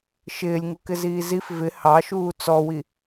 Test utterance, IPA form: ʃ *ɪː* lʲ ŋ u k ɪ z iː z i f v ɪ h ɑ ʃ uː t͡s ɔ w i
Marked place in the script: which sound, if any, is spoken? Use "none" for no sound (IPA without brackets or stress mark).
ɪː